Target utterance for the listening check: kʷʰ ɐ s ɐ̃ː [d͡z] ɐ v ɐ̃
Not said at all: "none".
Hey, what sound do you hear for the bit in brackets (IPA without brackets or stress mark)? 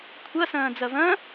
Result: d͡z